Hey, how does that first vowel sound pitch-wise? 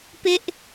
high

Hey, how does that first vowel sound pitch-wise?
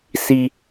low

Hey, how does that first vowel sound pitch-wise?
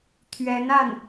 rising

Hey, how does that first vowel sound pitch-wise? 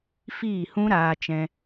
falling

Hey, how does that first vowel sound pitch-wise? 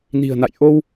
low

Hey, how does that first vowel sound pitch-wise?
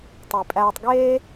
low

